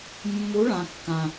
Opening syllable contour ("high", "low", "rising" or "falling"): rising